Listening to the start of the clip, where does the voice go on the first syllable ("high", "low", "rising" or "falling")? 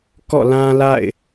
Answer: falling